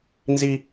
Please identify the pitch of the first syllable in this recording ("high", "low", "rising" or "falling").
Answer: high